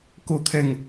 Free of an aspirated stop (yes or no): no